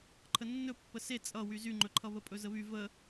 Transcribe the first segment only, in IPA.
ǃʰ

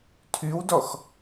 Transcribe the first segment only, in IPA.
tʰ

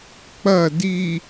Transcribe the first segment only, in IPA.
k͡p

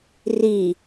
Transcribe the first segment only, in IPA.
r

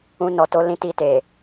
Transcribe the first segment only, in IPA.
ũ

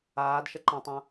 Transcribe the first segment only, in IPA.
aː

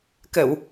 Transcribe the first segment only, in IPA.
k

